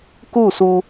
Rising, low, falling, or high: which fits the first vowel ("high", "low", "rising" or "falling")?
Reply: falling